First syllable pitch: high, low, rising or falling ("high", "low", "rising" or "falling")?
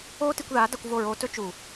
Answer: high